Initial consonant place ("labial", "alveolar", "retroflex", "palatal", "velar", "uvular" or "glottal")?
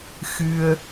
velar